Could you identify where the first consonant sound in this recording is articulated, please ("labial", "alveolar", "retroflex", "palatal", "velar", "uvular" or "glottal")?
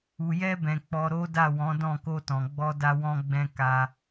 palatal